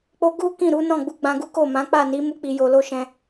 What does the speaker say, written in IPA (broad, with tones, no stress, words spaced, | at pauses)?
k͡po˦ ɡu˦ kĩ˦˨ɾu˨˦ nɔ̃˦˨ɡ͡bu˧ɡ͡bã˧ɡu˦ ko˦˨mã˨˦ k͡pa˦˨ni˨˦ mu˦k͡pi˧jo˧lo˦ ʃɛ̃˧